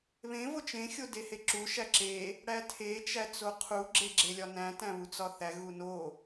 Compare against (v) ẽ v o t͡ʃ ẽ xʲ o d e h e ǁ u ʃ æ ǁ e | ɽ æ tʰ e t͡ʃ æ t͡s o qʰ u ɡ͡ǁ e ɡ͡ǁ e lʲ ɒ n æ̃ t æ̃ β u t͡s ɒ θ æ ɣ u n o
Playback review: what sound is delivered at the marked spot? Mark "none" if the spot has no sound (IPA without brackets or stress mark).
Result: β